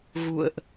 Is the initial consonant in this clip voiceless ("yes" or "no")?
no